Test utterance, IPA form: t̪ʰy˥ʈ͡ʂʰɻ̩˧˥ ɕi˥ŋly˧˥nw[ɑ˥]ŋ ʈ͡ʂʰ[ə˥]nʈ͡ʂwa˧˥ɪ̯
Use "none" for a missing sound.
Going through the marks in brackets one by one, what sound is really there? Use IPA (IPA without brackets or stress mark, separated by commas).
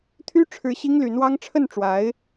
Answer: ɑ˥, ə˥˩